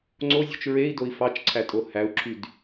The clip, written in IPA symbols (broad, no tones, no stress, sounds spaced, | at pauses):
ŋ͡ǀ o zʲ o̤ t͡ʃ ɹ e i̯ d o i̯ f ɑ t͡ʃ ǀʰ æ tʼ o h æ u̯ ǁʰ y d